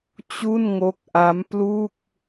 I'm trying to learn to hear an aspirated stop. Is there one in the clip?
no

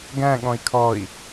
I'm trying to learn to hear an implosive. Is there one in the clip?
yes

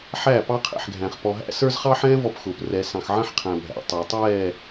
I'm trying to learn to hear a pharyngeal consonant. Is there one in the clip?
yes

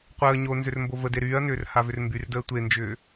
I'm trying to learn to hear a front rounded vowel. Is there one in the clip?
yes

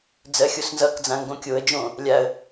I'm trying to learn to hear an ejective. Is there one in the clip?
no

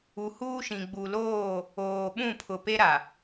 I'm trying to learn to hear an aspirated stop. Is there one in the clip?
yes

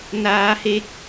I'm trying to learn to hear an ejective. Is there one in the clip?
no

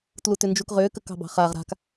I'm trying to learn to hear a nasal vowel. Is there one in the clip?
no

